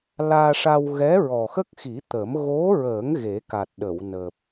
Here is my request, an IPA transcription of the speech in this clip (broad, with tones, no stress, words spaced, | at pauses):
laː˧ʂa˧w ɣɛ˧˥ɹɔ˨˩xə˦˥k̚xi˨˩˦ t̪ə˨˩˦m ɣo˧˥ɹə˨˩˦ŋ ɣe˨˩˦ka˨˩t̚ɗə˨˩˨w nəː˨˩p̚